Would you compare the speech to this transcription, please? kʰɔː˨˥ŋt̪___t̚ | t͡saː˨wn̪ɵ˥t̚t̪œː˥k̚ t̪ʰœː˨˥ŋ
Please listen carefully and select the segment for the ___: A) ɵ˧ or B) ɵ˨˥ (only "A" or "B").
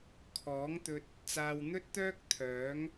A